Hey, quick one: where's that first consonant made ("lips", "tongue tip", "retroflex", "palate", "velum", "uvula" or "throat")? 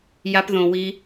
palate